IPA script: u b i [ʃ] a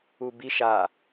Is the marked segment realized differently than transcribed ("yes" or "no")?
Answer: no